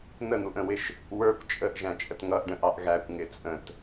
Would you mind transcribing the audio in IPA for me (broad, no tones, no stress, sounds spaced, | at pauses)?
n̪ ə n̪ u ʔ ə̃ w ɪ ʃ | w ə˞ kʷ t͡ʃʼ ə ʔ ʒ æ̃ t͡ʃʼ ə t ŋ ʌ ʔ ɖ ə̃ ʔ ɑ ʔ ɣ æ kʷ ŋ ɪ t͡sʼ ə̃ t